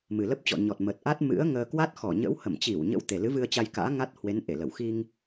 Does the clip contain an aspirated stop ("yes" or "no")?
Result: no